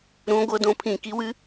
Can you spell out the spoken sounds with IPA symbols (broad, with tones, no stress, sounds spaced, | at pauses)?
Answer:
ɾ ũ˨˥ ɡʷ ɤ˨˥ d õ˨˥ pʰ ĩ˧˩˧ k i˨˥ w ɨ˨˥